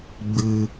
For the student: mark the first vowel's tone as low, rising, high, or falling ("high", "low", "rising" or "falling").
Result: low